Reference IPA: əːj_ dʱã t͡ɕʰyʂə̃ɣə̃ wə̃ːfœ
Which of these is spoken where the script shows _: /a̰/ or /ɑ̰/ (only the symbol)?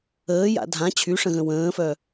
a̰